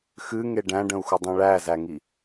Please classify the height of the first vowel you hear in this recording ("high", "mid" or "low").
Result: high